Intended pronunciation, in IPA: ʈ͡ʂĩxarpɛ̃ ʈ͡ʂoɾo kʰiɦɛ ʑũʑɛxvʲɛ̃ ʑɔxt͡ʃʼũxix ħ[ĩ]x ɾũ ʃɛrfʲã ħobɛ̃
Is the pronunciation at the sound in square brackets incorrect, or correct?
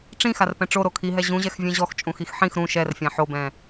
correct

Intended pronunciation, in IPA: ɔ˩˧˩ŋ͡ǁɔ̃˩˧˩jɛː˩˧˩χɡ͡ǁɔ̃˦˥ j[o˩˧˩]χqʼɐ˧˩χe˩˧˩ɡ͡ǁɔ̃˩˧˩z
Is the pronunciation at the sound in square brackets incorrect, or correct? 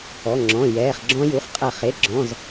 incorrect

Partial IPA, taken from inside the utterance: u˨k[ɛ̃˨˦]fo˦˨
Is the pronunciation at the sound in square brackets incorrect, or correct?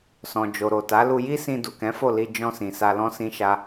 correct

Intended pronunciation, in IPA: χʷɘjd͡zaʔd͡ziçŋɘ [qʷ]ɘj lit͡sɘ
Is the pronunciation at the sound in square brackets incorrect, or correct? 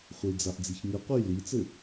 correct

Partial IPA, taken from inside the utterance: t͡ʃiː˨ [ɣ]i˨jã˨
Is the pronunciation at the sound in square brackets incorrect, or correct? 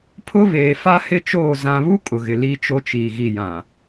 correct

